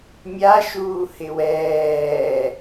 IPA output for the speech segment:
mʲ a ʃ uː h ɪ w ɛː

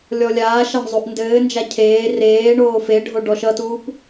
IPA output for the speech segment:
lʲ ɔ lʲ aː ʃ a ɳ zˤ u ʔ n d ɘː n d͡ʒ a cʰ eː r eː ɳ oː f e ɖʱ o ɖ ɔ ʃ ʌ t uː p

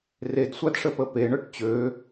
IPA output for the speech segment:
r e d sʷ a d ʂ ə p ə p e ɳ œ ʈ t͡ɕ ø

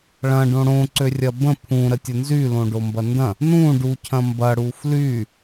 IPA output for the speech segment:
ɭ ɐ̃ ɖ õ ɽ õ ǀ ø rʲ ɐ b ə̃ pʰ ũ ɾ ə tʲ ə n z y l õ ɖ o m b ɐ n d ɐ̃ | n ũ ɖ u cʰ ɐ̃ m b ɐ ɽ u f l y

